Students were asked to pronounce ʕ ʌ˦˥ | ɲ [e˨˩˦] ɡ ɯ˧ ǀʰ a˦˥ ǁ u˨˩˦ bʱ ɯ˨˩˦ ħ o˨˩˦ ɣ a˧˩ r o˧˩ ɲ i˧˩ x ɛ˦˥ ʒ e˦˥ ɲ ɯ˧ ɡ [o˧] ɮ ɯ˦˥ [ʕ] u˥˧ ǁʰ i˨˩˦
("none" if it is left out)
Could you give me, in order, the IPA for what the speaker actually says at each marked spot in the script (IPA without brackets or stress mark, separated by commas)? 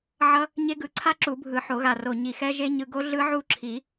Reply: e˦˥, o˦˥, ʕ